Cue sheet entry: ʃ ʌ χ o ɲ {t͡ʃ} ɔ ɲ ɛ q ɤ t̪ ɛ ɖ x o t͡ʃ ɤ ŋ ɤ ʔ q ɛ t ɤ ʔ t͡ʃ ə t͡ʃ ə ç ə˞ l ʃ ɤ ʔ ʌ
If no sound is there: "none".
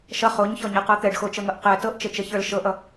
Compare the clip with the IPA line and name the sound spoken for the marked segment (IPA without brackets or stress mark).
ç